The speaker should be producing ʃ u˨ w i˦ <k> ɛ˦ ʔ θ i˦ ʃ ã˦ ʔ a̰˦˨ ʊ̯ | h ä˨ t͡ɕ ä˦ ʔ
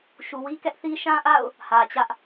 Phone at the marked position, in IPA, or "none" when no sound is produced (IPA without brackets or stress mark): k